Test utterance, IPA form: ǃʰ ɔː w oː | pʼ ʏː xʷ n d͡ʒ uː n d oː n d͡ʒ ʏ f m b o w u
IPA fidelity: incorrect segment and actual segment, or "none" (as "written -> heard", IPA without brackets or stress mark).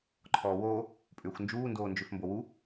none